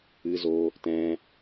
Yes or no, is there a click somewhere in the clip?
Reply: no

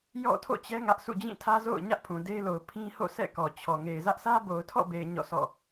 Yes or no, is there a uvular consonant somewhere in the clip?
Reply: no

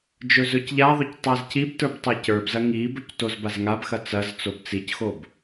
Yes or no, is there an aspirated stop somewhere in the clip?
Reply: no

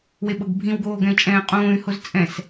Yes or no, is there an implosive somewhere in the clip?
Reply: yes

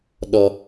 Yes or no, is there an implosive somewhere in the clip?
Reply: yes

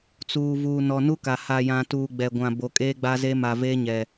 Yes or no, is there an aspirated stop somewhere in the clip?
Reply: no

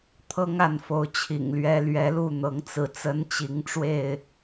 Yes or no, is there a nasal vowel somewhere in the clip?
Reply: no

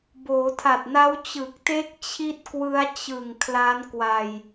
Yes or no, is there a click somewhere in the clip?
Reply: no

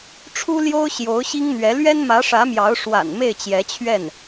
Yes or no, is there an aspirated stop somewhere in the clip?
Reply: yes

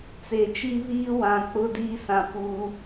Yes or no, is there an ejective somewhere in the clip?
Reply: no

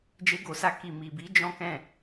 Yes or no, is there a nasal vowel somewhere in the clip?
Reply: yes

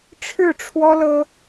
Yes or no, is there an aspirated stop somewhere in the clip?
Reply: yes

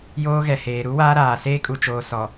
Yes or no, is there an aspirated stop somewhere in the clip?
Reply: no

